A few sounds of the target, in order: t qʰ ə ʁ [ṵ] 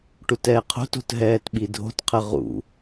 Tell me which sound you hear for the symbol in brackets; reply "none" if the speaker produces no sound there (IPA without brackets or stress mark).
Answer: ṵ